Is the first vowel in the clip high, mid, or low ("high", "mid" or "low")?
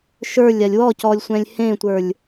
mid